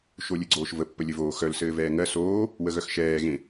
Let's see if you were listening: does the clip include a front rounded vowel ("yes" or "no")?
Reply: yes